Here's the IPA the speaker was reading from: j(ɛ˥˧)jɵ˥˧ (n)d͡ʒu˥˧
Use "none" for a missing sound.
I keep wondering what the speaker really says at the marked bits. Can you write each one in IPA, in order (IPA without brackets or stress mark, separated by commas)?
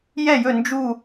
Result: ɛ˥˧, n